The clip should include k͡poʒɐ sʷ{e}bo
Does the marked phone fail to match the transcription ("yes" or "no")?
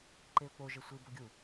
yes